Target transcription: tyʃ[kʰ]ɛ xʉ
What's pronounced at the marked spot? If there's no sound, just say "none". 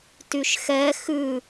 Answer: x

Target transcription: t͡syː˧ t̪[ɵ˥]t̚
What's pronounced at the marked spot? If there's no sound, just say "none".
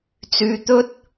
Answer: ɵ˥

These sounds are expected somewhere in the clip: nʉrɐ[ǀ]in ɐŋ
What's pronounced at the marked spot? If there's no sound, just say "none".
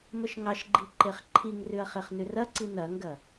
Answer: ǀ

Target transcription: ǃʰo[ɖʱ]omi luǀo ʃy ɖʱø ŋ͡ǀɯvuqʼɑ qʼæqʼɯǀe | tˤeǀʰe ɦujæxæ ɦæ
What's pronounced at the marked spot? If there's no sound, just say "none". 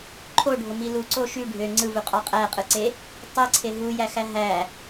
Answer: ɖʱ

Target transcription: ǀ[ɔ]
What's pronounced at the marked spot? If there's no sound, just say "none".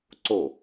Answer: o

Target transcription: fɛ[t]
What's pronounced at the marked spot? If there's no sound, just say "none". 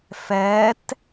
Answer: t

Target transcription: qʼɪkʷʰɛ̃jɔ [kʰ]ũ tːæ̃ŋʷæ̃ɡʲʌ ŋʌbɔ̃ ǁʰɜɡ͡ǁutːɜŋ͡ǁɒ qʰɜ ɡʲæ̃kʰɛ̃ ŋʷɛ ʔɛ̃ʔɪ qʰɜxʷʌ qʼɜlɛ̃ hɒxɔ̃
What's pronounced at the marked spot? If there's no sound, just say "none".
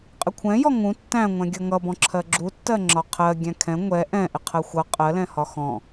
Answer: ŋ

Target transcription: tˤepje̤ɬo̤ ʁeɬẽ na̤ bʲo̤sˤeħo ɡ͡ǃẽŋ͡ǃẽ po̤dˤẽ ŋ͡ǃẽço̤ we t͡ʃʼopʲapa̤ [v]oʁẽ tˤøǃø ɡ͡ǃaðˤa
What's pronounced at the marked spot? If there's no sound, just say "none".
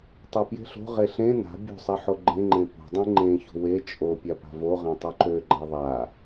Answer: v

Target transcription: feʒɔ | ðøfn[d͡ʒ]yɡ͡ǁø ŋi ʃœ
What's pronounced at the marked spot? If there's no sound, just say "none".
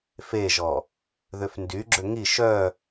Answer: d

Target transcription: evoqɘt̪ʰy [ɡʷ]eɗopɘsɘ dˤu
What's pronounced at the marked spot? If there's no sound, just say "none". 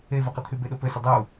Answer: b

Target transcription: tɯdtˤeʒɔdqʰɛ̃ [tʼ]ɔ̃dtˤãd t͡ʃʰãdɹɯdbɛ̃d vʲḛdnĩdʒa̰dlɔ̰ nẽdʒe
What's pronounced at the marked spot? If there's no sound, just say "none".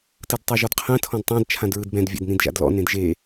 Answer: tʰ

